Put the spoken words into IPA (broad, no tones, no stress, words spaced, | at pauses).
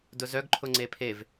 dʊzœɡ ǃʰʊŋ͡ǀepʰev